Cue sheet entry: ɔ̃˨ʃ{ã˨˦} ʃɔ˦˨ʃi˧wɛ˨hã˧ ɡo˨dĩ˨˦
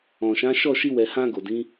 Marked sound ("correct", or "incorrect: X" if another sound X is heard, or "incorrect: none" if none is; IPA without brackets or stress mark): correct